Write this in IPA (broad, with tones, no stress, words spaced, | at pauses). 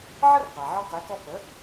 ʕə˥rqa˩ʕɔ˧ qe˩˥kɔ˧ pə˩˥